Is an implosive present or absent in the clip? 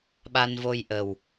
present